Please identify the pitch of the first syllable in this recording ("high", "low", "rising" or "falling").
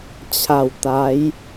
low